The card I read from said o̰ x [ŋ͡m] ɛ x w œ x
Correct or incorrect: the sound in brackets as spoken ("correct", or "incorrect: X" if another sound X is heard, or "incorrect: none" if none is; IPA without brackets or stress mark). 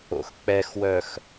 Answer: incorrect: k͡p